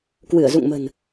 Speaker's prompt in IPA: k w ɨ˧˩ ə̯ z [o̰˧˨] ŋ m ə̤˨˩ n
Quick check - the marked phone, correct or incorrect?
incorrect: ṵ˧˨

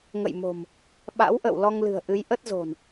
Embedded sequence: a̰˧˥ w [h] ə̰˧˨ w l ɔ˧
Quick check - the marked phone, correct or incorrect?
incorrect: ʔ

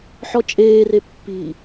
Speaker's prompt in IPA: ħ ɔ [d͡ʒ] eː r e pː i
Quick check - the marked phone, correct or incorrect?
incorrect: t͡ʃʼ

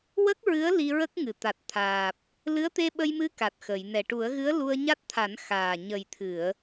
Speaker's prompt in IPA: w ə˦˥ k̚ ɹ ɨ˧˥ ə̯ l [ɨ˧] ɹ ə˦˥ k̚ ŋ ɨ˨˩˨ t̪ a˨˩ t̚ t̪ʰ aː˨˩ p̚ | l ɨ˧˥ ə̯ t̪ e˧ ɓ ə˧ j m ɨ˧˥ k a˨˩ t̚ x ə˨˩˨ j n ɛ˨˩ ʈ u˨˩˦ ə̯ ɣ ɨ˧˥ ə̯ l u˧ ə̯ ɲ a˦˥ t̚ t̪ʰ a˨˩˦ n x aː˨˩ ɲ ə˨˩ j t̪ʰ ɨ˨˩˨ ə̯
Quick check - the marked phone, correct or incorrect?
incorrect: i˧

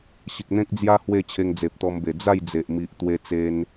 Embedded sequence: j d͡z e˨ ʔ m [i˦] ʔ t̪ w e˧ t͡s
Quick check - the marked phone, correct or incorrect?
incorrect: i˨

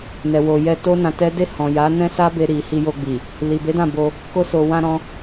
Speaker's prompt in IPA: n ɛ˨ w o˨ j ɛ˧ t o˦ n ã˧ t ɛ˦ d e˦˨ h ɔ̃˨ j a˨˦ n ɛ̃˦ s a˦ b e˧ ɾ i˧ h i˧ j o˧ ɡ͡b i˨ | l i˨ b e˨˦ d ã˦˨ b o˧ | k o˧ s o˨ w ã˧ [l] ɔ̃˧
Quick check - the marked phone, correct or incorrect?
incorrect: ɾ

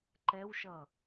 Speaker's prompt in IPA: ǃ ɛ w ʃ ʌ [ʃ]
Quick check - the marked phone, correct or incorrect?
incorrect: none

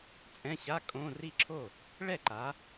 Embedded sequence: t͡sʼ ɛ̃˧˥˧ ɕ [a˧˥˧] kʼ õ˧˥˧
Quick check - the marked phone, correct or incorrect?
correct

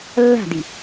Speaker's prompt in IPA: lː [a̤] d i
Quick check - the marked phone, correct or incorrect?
correct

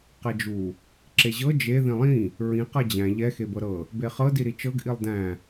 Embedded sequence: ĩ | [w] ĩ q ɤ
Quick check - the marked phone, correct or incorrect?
incorrect: ɹ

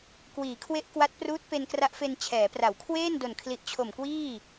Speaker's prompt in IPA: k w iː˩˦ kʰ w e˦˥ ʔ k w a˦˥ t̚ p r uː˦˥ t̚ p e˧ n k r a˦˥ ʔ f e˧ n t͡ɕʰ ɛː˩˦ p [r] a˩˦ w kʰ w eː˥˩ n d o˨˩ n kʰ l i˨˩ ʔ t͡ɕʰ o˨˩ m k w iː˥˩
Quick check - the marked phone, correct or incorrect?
correct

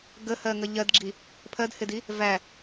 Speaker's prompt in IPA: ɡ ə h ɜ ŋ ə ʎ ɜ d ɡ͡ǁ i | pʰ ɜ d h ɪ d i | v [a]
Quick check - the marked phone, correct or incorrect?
incorrect: æ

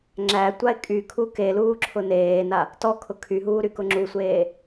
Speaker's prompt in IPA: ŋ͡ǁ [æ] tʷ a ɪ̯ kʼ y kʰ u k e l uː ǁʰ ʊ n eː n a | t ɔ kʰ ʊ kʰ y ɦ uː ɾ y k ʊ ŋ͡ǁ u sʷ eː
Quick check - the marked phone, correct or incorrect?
correct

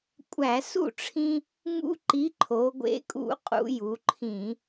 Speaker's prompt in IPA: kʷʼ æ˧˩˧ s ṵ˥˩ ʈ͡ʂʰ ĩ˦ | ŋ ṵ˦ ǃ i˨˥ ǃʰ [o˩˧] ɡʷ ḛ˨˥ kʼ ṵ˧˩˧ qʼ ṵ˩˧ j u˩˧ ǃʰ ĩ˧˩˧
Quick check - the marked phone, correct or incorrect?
correct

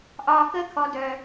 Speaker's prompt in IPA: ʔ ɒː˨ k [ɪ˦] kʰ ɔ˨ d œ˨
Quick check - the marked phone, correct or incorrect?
incorrect: ə˦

